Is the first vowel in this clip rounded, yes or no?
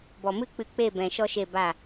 yes